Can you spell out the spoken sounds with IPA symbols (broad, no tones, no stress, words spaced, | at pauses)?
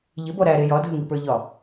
ʎɪbɔ ɾæɾe jɒdʱəŋipə˞ ʎɒ